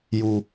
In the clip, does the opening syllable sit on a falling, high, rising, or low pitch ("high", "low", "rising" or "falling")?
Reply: low